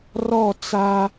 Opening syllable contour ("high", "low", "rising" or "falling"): falling